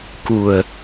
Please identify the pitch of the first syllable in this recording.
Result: low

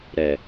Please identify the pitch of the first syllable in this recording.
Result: low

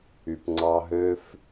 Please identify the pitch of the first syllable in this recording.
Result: low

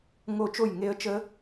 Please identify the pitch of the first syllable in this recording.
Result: falling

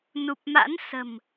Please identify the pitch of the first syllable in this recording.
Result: low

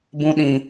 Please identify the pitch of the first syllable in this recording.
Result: high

